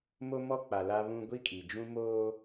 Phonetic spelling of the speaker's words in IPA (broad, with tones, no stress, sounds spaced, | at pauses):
m o˦ m ɔ˦ k͡p a˨ l a˦ β ũ˦ ɡʷ i˦ kʼ i˨ d͡ʒ ũ˦ m oː˦